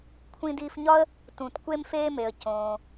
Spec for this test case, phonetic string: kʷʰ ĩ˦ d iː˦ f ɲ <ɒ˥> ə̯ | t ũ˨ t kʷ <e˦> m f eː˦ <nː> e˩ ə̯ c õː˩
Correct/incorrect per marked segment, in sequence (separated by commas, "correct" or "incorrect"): correct, correct, incorrect